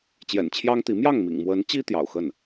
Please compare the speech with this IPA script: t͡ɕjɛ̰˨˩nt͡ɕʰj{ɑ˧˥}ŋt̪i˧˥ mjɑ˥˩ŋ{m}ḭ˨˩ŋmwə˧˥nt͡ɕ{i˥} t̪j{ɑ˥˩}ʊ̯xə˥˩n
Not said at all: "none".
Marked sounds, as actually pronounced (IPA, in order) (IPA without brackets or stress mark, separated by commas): ɑ˥, m, i˥, ɑ̰˨˩